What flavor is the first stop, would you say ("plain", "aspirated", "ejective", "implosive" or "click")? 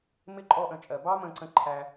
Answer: click